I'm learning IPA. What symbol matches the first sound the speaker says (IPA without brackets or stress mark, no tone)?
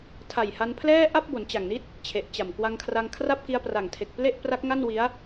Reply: tʰ